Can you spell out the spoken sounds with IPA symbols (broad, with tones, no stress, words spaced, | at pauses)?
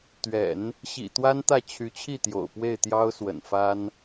t̪ɥɛ̰˨˩˦n | ɕḭ˨˩ t̪wa˥nt̪ä˥˩ t͡ɕʰy˧˥t͡ɕʰi˥˩t̪jo̰˨˩ʊ̯ pwe˥˩ɪ̯t̪jɑ˥ʊ̯swə̰˨˩n fa˥n